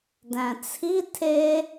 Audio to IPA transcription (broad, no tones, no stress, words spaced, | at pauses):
dæ̃t͡sʰi tʰe